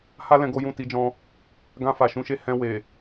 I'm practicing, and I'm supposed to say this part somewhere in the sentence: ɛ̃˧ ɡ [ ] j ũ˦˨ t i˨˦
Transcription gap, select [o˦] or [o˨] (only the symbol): o˦